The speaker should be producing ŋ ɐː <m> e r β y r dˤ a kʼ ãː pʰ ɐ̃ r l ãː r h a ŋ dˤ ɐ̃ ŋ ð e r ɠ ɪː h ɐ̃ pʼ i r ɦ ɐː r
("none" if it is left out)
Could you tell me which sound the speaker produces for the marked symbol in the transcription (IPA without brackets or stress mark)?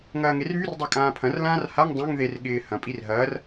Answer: ŋ